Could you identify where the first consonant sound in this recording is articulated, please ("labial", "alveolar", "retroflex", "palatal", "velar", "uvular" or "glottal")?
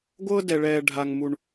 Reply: velar